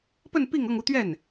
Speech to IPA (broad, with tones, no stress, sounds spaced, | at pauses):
p ə˥˧ n p i˥˧ ŋ ɤ˥˧ ŋ u˥˧ t̪ ɥ ɛ˥˩ n